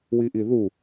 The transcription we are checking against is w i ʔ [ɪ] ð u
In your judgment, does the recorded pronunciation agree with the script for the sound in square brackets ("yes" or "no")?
no